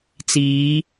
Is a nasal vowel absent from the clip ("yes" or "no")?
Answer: yes